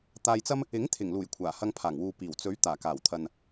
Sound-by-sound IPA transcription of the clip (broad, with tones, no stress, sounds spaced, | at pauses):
t̪ aː˧ j t͡s ɐ˥ m | ɪ˨˥ ŋ t̪ʰ ɪ˨˩ ŋ l uː˨˩ j kʷʰ aː˨˩ h ɐ˧ ŋ pʰ aː˨˩ ŋ w uː˨ p iː˨˩ w t͡s ɵ˨˥ ɥ t̪ aː˨˩ k aː˨˩ w t̪ʰ ɐ˨ n